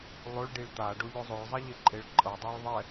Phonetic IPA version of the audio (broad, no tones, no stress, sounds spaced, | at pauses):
lˠ o ɭ ɖ i ɭ t̪ a ɖ o ʎ o zˤ o ɭ zˤ ɛ ʎ e ǃʼ e ɭ ǃʼ ɤ dˤ o ɭ ðˤ ɛ